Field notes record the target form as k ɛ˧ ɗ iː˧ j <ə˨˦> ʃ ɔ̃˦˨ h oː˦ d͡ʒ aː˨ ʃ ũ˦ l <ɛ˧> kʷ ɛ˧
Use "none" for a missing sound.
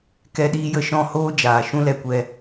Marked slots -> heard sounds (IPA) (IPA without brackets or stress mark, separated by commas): ə˦˨, ɛ˧